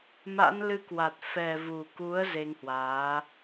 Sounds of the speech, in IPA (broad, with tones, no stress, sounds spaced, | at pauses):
m a̰˧˥ n l ɨ˧ k w a˨˩ t̚ f ɛ˨˩ v u˨˩ k u˨˦ ə̯ z e˧ ŋ h w aː˨˦